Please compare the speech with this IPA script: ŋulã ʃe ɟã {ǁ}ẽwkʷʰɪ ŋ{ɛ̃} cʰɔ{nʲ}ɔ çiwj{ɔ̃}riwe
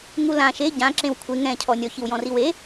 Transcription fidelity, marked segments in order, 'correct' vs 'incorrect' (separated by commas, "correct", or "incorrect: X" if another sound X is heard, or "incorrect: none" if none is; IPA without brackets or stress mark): correct, correct, correct, correct